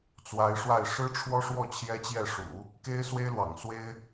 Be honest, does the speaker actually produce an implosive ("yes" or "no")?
no